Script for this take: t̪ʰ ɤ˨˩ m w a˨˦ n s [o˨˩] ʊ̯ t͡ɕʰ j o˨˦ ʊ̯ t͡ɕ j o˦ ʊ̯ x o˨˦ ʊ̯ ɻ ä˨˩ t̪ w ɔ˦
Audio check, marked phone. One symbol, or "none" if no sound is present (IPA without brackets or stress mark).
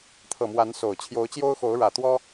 o˨˩